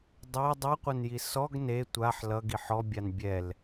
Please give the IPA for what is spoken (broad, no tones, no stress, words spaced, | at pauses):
dˤæ dˤʌqʷɐnji sɔɡ ne tʷaħ lʌɡi ħɔbʲan bʲɛl